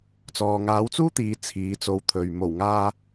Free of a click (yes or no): yes